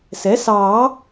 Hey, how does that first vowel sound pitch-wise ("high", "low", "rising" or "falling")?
rising